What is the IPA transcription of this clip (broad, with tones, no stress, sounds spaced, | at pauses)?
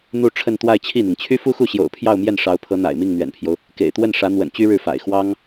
n̪ u˥˧ ʈ͡ʂʰ ə˥˧ n t̪ w a˥˧ ɪ̯ t͡ɕʰ i˥˩ n̪ i˩ ŋ t͡ɕʰ y˥ f u˥ x u˥˩ ɕ j o̰˨˩ ʊ̯ pʰ j ɑ˥˧ ʊ̯ m j ɛ˥˩ n ʂ ɑ˧˥ ʊ̯ pʰ ɤ˧˥ n̪ a̰˨˩ ɪ̯ m i˥˩ ŋ n̪ ɥ ɛ̰˨˩ n pʰ j o˦ ʊ̯ | k ḛ˨˩ ɪ̯ t̪ w ə˥˩ n ʂ ä˧˥ n̪ w ə̰˨˩ n t͡ɕ y˥ ɻ ɻ̩˥˩ f a̰˨˩ ɪ̯ x w ɑ˥ ŋ